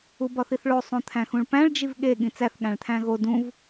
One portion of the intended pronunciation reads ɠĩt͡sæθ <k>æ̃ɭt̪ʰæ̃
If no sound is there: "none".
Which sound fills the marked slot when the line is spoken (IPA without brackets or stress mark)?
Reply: ɠ